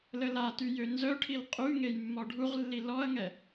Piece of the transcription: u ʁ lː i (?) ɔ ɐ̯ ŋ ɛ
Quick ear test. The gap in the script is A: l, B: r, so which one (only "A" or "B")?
A